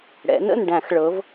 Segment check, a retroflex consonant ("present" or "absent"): present